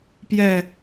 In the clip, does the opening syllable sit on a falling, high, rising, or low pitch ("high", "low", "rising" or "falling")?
low